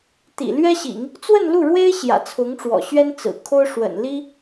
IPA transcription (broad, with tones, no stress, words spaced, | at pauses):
t̪ḭ˨˩ lɥɛ˥ɕḭ˨˩˦ŋ | t͡swə˥˧nlu˥˩ɻwe˥ɪ̯ ɕjä̰˨˩t͡sʰʊ˧˥ŋʈ͡ʂwɔ̰˨˩ ɕɥɛ˥nt͡sɹ̩˨˩kʰo˥ʊ̯ʂwə̰˨˩n li˥